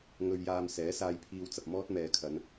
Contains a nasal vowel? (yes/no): no